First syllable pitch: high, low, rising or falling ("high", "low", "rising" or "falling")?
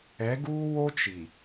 rising